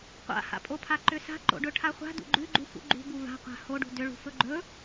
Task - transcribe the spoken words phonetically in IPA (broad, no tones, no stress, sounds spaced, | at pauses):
qʷ a̰ h a̰ pʼ o pʰ a ǃ ʏ s a̤ ǃ o̰ ɖ ɵ ʈʰ a χʷ a̤ d ṵ ɡ͡ǃ ʉ ɡ͡ǃ u f ṵ ɡ͡ǃ ṳ b u v a̤ qʷ a̤ h o ɖ ṳ d ʏ ɭ ṳ f ɵ ɡ͡ǃ ɵ